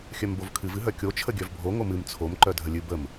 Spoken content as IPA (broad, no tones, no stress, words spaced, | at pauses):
xʲœmbovkʰɨv ɨɦœkʲo t͡ʃʰəɡʲœvbʱo ŋomɨm t͡sʰom ǃœdʱəlʲɨ bəm